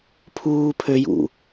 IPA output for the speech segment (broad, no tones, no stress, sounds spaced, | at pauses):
pʰ uː pʰ ø j ṵ